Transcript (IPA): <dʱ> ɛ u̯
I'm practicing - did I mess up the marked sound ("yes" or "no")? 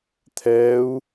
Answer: yes